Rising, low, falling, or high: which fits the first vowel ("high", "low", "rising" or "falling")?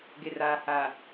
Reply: low